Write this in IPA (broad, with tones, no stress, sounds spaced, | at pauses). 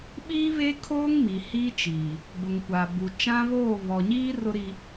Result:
ɓ iː˦ β e˦ kʰ oː˦ ŋ m i˨ h i˦ t͡ʃ iː˨ | b ʊ˨ ŋ kʷ aː˨ b u˨ t͡ʃ ã˦ β oː˦˨ β ɔ˨ ɲ iː˦ r ʊ˦ ɾ i˦